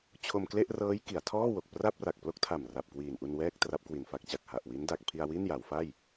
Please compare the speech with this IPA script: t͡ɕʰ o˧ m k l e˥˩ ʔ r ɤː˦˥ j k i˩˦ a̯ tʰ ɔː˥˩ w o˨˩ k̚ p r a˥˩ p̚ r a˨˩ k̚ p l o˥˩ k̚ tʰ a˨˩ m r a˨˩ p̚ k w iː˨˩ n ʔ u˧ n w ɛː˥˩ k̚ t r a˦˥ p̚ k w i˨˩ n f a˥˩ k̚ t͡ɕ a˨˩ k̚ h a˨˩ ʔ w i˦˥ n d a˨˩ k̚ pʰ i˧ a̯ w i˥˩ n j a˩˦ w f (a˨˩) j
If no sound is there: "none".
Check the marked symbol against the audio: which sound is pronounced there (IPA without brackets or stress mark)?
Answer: a˥˩